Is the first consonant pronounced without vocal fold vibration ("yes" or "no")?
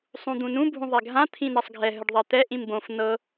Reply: yes